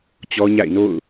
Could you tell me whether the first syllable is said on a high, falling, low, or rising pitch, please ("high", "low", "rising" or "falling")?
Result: high